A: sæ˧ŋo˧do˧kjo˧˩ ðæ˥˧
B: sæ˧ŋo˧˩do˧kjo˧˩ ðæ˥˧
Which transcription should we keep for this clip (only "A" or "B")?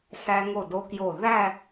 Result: B